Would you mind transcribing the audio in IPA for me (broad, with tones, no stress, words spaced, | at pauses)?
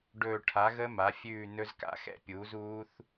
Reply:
ɖɵː˦˨ ʈʰa˩˥ɣə˦˥ ma˩˥fʲʉː˦˨ nɵ˦˥zka̰˦˥xɛ̰˦˥pʲuː˩˥z uː˦˥θ